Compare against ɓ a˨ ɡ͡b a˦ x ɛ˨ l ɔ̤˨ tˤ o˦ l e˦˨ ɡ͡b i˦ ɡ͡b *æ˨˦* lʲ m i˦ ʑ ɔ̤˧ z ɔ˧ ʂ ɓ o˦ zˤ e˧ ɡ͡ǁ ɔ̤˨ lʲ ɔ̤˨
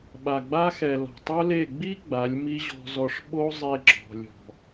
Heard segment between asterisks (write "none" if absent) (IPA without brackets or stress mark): a˨˦